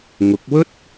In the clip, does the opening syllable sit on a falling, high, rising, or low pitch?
rising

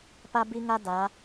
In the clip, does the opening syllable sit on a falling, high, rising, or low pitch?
high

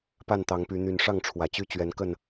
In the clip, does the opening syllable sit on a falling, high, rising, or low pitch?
falling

